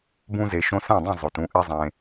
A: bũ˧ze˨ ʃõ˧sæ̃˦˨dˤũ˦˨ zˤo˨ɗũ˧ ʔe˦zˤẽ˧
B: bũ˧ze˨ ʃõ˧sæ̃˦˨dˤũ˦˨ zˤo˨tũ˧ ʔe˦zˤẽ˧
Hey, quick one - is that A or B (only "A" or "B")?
B